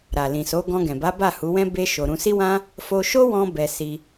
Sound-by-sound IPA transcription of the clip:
ɾa˨lĩ˨so˨˦ ɡɔ̃˧ɡɛ̃˨ba˨˦ba˦˨ hu˨˦wɛ̃˦ be˦ʃo˧ ɾũ˧si˦wã˦ | fo˧ʃo˦ wɔ̃˧bɛ˨ si˧

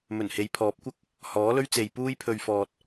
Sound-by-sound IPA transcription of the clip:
mɵ˨˩nhe˨˧jpʰɔː˨˥p̚kʷɐ˥k̚ | hɔː˨˥lɵ˥ɥt͡se˨˧j puː˥jpʰɵ˧ɥfɔː˧t̚

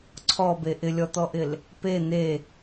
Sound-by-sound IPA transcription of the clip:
ǀʰɔbe ʔɪlʲɔt̪ɔʔɪl | pe n̪e

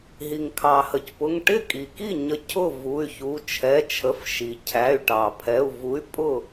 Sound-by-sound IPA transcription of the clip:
ɦi˩ŋkʰɑ˩hə˩cpʊ˩˧˩ŋ ʈɪ˥˩kʼi˩ki˥˩ɲə˨˥ cʰʊ˥˩ vu˩˧˩y̯çu˩˧˩ t͡ʃʰɛ˩˧˩t͡ʃʰə˩˧˩f ʃi˩cʰæ˩˧˩y̯ʈɑ˩ pʰɛ˩˧˩u̯vu˨˥y̯ pʼʊ˥˩

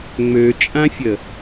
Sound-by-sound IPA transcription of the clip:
ŋ͡møt͡ʃʼãfʲə

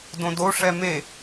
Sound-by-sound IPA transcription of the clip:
dõdo ʂɛme

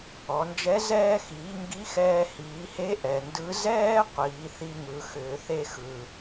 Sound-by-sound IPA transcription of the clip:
ɔ˩˧nd͡ʒɛ˧˥ zɛː˧xiː˩˧ ŋɡi˧˥ xɛː˧hiː˩˧he˧˥ ʔɛ˩ndɯ˧˥ zɛː˥ qʷiː˩˧θi˧ŋɯ˩˧xʏː˩˧ θe˧xɯ˩

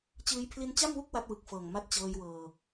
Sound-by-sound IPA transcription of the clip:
t͡ɕɯː˦˥j pʰli˧nt͡ɕa˥˩mwu˥˩k̚ wa˦˥t̚wɯ˨˩k̚fɤː˨˩ŋ ma˦˥t̚t͡ɕɤː˧jwɤː˧

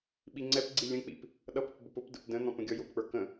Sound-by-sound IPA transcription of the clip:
ɓiŋ͡ǀɛpɡ͡ǀi lʲə̃ k͡pḭp | ɗʌpəp bʊpʊpdə̰p də̃n̪ɔ̃p ə̃ɡʲɔjʊpk͡pə˞ kə̃

